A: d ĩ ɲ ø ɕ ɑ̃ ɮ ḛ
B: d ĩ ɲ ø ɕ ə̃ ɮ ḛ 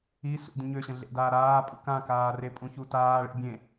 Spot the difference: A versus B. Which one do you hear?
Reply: B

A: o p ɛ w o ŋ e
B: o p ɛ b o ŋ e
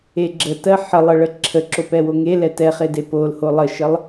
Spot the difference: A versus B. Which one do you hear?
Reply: A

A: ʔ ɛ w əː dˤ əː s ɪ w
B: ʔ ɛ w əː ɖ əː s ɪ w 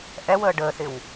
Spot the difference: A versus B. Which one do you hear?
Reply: B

